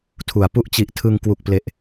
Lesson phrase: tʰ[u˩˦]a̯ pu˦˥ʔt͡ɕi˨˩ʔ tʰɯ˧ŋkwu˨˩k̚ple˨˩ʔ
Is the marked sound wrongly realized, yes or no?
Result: no